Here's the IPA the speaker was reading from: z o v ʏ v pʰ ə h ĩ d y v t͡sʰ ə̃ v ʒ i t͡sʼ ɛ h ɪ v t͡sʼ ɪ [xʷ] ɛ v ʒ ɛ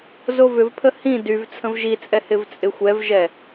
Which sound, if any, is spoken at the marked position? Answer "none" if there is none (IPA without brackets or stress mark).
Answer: xʷ